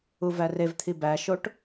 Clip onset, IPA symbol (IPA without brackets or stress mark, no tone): u